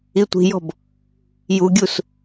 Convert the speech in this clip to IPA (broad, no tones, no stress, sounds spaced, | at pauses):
i tʷ i̤ j ɔ̤ b | j u ɡʲ u s